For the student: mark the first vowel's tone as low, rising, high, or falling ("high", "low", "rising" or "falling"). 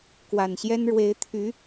low